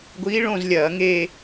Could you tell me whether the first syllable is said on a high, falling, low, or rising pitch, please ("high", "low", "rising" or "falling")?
rising